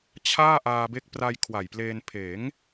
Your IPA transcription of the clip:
t͡ɕʰaː˥˩ ʔaː˧be˦˥k̚ pra˧j kʰwa˨˩jpleː˧n pʰeː˩˦ŋ

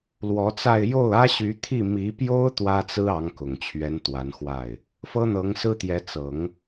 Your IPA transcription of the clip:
lwɔ˧˥t͡sa˥˧ɪ̯ jo˥˩ʊ̯ä˥ɕy˧˥ t̪ʰi˥˩ mi˧˥pjo˥ʊ̯ t̪wä˥t͡sɹ̩˥ ɑ˧˥ŋkʊ˨˩ŋt͡ɕʰɥɛ˧˥n t̪wa˧˥nxwa˥˩ɪ̯ | fɤ˥n̪ɤ˧˥ŋsɹ̩˥t̪jɛ˧˥ t͡sɤ˨˩˦ŋ

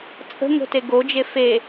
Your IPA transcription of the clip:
t͡sʼə̤ ŋo̤teɡod͡ʒe fe

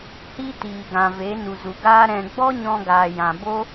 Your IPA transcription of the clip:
hi˦tiː˨ɡã˨ ve˨˦nu˨zu˨ɡaː˦ ɾɛ̃˧ ɡ͡bɔ˦ɲɔ̃˧ɡaː˨ jã˨bo˦

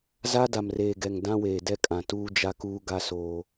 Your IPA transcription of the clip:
za˦da˨mreː˨ɡɛ˨ŋ dã˦weː˨dɛ˦kʼã˨ tuː˦d͡ʒa˦kuː˦ ɡa˦soː˦

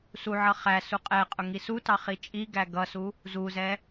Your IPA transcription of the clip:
suʕʌ χæ suqʼɛqʼʊ ŋisutɑ χit͡ʃʼiɡæ ɡʌsu | zuzɛ

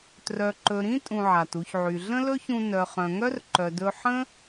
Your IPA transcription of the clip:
trœ˨ǃɵ˨ɾĩ˦ tʼũ˧ʕa˨tu˧çʕy˨ ɮə̃˦lɵ˦çũ˧ nœ˨χœ̃˨ŋœ˦r ǃœ˨dɵ˧ ħə̃˦

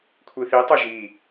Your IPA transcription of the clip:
kʷʰiθi tˤoʒi

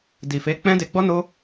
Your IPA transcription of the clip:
di˨fe˨˦ k͡pɛ̃˦de˧ɡ͡bɔ˦ no˦

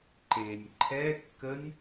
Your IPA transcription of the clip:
ǃenʲ ǃʰɛ kːənʲ

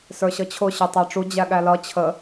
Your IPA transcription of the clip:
sə˞ɕʌt͡ɕʰʊ ɕə˞tˤɑʈ͡ʂu d͡ʑæɠælʌ t͡ɕʰə

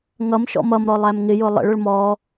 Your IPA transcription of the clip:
ŋʌmʃɔ̰ mʌmɾɔ lˠæmŋɪjʊ lˠə̰ɭʊɭ mɔ

